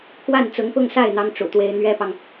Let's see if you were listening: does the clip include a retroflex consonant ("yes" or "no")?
yes